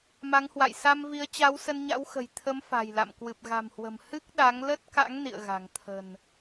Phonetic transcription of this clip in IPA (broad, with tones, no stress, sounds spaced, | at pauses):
m a˨˦ ŋ h w a̰˧˨ j s a˧ m v i˨˦ ə̯ t͡ɕ a˨˦ w s ə˧ n ɲ a̰˧˥ w x ə̤˨˩ j t̪ʰ ə˨˦ m f a̤˨˩ j l a̰˧˨ m k w ɨ˨˩ p̚ ɣ a̤˨˩ m h w ə̤˨˩ m h ɨ˦˥ k̚ ɗ a˨˦ ŋ l ə˦˥ t̚ k a̰˧˥ ŋ n ḭ˧˨ ə̯ ɣ a̤˨˩ ŋ t̪ʰ ə̤˨˩ n